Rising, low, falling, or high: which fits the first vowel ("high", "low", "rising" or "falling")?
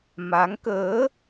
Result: rising